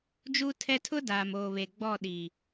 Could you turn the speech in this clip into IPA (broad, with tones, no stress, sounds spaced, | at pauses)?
d͡ʒ u˦ tʰ ɛ˦ tʰ ʊ˦ d aː˨ m oː˨ β e˨ ɡ͡b ɔ˦˨ ɗ iː˨